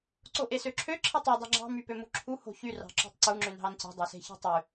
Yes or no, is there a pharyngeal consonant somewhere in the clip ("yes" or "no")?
no